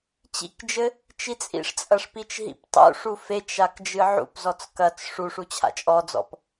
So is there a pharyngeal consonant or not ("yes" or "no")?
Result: yes